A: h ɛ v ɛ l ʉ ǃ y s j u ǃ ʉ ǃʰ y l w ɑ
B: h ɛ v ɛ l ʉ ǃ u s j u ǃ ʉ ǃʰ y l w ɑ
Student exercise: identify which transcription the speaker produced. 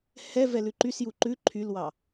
A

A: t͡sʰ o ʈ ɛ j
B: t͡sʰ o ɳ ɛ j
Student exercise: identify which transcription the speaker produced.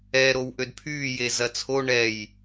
B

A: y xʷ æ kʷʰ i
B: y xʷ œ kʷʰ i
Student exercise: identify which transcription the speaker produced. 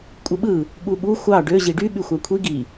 A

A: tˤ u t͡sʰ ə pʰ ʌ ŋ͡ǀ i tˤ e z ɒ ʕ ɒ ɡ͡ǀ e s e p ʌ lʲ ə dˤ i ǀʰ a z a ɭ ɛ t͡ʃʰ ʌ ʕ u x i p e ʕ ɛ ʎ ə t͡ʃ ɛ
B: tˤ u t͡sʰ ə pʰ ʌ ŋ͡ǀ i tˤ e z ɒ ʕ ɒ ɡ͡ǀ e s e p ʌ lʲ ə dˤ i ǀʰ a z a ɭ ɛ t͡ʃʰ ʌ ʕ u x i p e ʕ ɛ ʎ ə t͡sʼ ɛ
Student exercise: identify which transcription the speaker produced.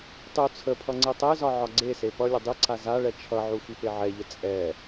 B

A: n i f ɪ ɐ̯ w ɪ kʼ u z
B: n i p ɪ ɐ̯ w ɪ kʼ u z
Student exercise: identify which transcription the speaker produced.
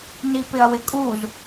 B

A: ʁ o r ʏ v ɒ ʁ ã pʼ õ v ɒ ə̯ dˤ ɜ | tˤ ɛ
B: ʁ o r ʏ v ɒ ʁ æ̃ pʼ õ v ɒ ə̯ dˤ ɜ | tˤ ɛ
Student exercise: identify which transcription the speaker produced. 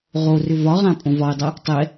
A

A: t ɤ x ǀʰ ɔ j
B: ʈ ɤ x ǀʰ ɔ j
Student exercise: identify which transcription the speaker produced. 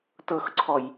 A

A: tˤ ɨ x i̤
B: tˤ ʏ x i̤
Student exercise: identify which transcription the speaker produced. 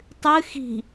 A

